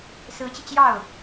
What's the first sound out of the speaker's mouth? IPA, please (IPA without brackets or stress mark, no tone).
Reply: s